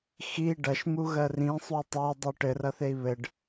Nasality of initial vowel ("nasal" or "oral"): oral